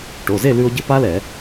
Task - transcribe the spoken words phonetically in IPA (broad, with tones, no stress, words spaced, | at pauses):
ʈo˩˧˩ze˥˨lʉ˧o̯ ɟɘ˦˥pa˦˥lɛ˧˩˧